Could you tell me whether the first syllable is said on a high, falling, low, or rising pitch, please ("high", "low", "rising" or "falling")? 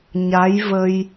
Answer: rising